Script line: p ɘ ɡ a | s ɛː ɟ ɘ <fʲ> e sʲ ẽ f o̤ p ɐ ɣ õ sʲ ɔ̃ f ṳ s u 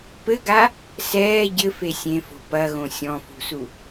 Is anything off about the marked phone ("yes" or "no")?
yes